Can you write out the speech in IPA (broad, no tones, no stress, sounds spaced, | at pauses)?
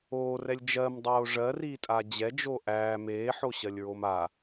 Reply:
oː r ɛ lʲ d͡ʒ ɜ m dˤ oː ʐ ɜ r iː tʼ a d͡ʑ ɛ d͡ʒ o ʔ æː m eː ħ o ɕ ɜ lʲ ɹ o m a